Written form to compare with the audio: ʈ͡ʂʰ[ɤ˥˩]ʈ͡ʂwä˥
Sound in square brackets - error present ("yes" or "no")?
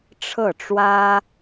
no